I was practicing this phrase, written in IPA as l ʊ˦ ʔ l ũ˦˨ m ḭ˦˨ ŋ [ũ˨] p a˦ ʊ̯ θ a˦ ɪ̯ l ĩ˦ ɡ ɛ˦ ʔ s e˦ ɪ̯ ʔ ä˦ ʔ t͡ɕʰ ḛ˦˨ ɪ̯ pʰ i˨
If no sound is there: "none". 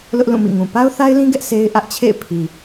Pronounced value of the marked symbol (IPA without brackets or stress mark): ũ˨